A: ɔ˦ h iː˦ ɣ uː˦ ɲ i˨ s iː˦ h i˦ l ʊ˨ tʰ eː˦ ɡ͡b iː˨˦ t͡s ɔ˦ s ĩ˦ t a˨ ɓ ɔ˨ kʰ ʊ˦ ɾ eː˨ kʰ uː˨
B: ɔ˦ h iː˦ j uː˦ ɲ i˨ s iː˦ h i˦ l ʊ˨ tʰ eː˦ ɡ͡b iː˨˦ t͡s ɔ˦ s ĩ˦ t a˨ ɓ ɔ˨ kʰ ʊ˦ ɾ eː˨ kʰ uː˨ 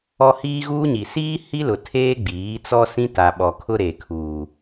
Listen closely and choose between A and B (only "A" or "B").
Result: A